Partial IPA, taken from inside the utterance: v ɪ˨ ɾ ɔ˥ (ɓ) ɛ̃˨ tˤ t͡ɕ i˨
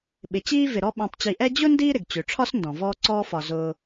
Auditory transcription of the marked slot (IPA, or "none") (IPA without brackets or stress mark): ɓ